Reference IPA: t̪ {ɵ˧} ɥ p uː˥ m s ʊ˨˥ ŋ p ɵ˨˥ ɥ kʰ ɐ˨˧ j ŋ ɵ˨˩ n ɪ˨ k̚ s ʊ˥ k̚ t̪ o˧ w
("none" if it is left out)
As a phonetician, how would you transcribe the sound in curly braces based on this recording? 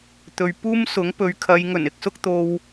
ɵ˨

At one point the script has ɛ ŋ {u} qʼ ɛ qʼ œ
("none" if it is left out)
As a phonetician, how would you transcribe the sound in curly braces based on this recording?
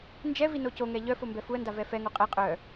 o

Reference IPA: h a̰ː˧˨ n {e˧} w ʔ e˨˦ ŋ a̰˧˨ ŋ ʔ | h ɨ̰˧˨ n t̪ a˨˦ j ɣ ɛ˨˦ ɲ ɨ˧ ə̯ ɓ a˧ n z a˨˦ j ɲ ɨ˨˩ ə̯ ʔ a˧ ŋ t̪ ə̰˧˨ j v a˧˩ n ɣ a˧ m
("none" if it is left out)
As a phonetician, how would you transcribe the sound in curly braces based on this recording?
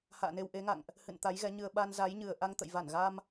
e˧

